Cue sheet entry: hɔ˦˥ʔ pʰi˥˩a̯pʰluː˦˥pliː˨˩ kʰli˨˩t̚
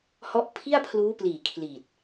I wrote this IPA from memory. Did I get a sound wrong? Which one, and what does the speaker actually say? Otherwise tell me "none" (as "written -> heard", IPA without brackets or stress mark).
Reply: none